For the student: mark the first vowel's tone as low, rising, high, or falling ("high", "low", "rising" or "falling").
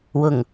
low